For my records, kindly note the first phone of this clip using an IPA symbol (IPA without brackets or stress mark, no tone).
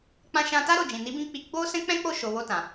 k͡p